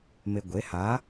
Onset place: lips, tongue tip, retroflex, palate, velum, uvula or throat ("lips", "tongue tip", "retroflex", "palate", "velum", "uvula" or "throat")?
lips